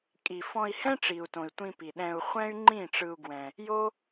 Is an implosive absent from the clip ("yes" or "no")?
no